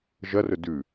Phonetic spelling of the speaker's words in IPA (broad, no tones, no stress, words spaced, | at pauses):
ʒɐrɵ dʉ